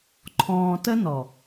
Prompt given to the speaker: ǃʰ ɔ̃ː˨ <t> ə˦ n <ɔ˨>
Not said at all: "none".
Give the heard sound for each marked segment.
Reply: t, ɔ˨

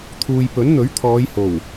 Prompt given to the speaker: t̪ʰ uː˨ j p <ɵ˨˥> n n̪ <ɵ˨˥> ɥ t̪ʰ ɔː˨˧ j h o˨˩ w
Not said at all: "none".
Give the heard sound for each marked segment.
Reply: ɵ˨˥, ɵ˨˥

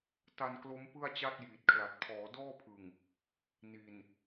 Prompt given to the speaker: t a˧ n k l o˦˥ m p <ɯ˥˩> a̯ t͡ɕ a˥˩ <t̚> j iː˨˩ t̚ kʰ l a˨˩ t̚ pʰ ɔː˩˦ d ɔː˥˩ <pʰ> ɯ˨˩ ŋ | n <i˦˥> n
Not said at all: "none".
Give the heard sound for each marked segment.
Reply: ɯ˥˩, t̚, pʰ, i˨˩

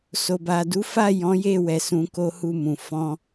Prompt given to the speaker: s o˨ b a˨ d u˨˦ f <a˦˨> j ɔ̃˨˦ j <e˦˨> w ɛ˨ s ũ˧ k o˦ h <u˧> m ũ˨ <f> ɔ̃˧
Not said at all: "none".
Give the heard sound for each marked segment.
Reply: a˦˨, e˦˨, u˦˨, f

